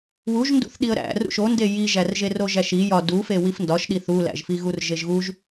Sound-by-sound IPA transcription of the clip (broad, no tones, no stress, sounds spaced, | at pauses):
w u ʒ n d ṵ θ ɗ i ə̯ ɾ æ̰ r ṵ ʃ o n d e j i ʒ æ r ʒ e r o ʒ æ ʃ i j ɒ d u f e w i f n d ɒ ʃ ɗ i θ u l æ̰ ʒ f i ɣ u r ʒ e ʒ ɣ u ʒ